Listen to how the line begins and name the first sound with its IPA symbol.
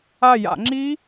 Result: a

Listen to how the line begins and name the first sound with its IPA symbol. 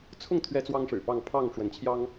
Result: t͡sʰ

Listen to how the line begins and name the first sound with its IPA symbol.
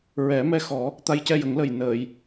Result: ɹ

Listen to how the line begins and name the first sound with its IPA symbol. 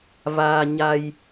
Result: v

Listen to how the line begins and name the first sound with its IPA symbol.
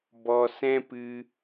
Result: b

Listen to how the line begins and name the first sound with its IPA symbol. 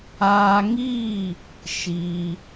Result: aː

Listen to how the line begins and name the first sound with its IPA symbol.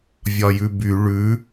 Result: vʲ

